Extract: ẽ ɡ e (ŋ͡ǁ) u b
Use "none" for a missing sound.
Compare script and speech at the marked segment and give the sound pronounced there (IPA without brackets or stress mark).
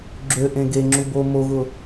ŋ͡ǁ